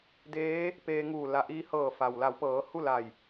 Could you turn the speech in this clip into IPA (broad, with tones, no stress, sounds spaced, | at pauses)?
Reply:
d eː˧˥ | p eː˧ ŋ uː˧˩ l a˧˩ ʔ iː˧ h ɤː˧˩ f a˩ w l a˩˧ w p ɤː˩˧ h u˥˨ l a˧˩ j